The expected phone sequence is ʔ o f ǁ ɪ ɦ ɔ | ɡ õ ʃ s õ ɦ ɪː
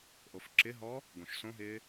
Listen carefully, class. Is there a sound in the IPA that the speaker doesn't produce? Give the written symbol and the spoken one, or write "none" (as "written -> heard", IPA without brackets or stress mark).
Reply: none